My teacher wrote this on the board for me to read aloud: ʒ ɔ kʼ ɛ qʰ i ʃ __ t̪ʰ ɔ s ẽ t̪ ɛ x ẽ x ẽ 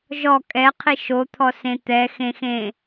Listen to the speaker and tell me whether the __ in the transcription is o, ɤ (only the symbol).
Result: o